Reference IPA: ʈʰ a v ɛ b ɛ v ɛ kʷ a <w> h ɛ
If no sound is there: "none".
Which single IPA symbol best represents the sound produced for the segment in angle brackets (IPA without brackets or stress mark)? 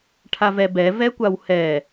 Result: w